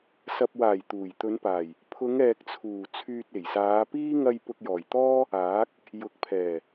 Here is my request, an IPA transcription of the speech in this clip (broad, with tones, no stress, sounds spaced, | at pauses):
s ɐ˨ p̚ w aː˨˩ j t̪ uː˨˩ j t̪ ɵ˨˧ n p aː˨˩ j | pʰ ʊ˨˧ ŋ ɛː˨ k̚ t͡sʰ uː˨˩ t͡sʰ yː˧ t̚ e˨˩ j s aː˨˧ p iː˥ ŋ ɐ˧ j p ʊ˧ k̚ j ɔː˨˩ j t̪ ɔː˥ | aː˨˥ k̚ | j ʊ˨˥ k̚ pʰ ɛː˨˩